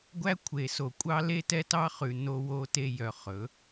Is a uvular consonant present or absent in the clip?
present